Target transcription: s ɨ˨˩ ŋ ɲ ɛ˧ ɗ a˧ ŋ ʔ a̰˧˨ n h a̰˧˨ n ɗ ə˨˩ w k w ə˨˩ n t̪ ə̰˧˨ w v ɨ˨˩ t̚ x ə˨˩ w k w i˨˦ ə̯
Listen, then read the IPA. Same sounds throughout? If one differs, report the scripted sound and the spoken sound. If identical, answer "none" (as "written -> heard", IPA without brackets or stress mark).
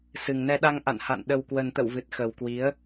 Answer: ɲ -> n